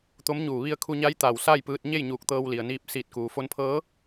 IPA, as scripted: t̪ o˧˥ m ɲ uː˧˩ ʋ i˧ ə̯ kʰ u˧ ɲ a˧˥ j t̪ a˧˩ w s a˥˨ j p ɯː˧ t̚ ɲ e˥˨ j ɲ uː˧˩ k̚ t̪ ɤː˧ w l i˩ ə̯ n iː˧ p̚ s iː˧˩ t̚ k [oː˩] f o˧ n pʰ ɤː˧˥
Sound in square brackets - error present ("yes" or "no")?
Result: yes